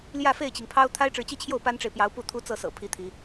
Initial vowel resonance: oral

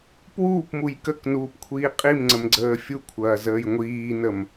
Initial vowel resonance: oral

